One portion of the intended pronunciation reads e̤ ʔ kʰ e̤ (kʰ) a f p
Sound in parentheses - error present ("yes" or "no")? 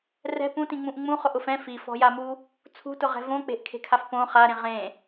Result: no